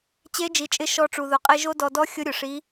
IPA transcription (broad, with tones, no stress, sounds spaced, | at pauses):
t͡ɕ e˧˥ d͡ʒ i˩˧ t͡ʃʼ ɪ˧ ʃ ɔ˧ ʈ͡ʂ u˩ ð ʊ˩˧ qʼ e˧ ʒ o˥ d ɔ˧ d ɔ˥ xʲ ʊ˧˥ ɾʲ ʊ˩ ʂ i˧˥